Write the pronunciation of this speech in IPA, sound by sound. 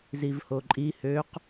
z i v h o ǃʼ i h ø q

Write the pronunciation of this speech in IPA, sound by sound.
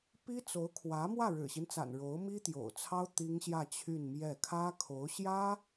p i˥ t͡s o˧˥ ʊ̯ kʰ w ä˧˥ m w ä˥˩ ɻ ɻ̩˨˩ ɕ i˦ n t͡s a̰˨˩ n ɻ o˧˥ ʊ̯ m i˥ t̪ j o̰˨˩ ʊ̯ t͡sʰ ɑ˥ ʊ̯ t̪ i˥ ŋ ɕ j ä˥˧ t͡ɕʰ y˥˧ n m j ɛ˥˩ kʰ ä˥ kʰ o˧˥ ʊ̯ ɕ j ä˥

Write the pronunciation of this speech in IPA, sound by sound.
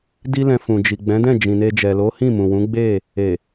d i˦ l ɛ̃˧ f ũ˨ d͡ʒ i˨ ɡ͡b ɛ̃˨˦ d ɛ̃˦˨ d͡ʒ ĩ˨ n e˧ d͡ʒ ɛ˨ l o˨˦ h ĩ˦˨ m ũ˨ w ũ˨˦ ɡ͡b e˦˨ | e˨

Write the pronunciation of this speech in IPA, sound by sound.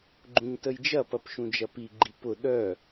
ɡ͡ǃ ũ ɲ t ə j d͡ʒ ɐ p ɐ p ʃ ũ d͡ʒ ɐ p i ɡ͡ǃ i p ʊ ɗ œ

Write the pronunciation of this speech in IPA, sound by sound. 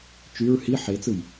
t͡ʃ y ɹ h i ħ e t͡s ɯ j

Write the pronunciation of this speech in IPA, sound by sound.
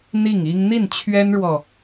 n̪ i˥˩ ŋ i˥ ŋ n̪ i˥˩ n t͡ɕʰ ɥ ɛ˥ n ɻ w ɔ˨

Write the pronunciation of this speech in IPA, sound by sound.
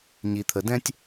ɲ i˩ t̪ʰ ə˩ d ɛ̃˥ tʲ

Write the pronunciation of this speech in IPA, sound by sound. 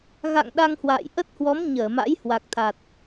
ɣ a̰˧˨ ŋ ɗ a˧ ŋ h w a̰ː˧˨ j ʔ ə˦˥ t̚ h w ɔ˨˦ m ɲ əː˧˩ m a̰˧˥ j h w a˨˩ k̚ t̪ʰ a˨˩ t̚

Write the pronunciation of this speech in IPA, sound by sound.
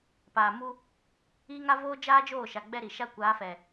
p aː˨ m u˦ | iː˦ ŋ a˦ v oː˦ d͡ʒ aː˦ d͡ʒ oː˦˨ ʃ a˨ ɡ͡b ɛ˦ ɾ i˨ ʃ a˦ kʷ aː˨˦ f ɛ˨

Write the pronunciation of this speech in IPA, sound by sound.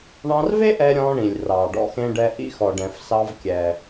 ɳ ɑ̃˧ r v e˥ ʔ ɛ˧ ɾʲ ɔ̃˧ ɳ ĩ˩ lʲ r ɑ˩ ɖ ɔ̰˧ x ẽ˧ ɖ ɛ˧ ʔ ḭ˧ x ɔ˩ ɖ ɛ̃˩ f s ɑ˧ v kʲ ɛ˩

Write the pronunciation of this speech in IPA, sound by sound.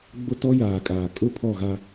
ɡ͡b ʊ˦ t ɔ˦ j aː˨ kʼ aː˨ kʼ ʊ˦˨ pʰ ɔ˦˨ ɣ a˦

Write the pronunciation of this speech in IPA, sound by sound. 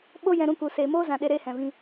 ɓ o˦ j ɛ̃˧ ɾ ũ˧ k u˨ s eː˨ m oː˦ z ã˨ ɗ e˧ ɾ eː˦ h ɛ̃˨ v ĩ˧

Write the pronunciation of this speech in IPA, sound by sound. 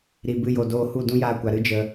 ɾ i˨ b ɨ˧ j o˨ d oː˧ h u˦˨ d ũ˦ j aː˧ kʷ a˨ ɾ ɨ˦ d͡ʒ ə˧

